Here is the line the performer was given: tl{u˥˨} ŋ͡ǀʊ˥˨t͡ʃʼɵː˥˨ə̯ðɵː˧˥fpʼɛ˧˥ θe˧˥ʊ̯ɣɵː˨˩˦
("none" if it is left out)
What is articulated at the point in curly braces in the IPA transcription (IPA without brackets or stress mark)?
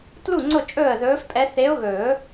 u˥˨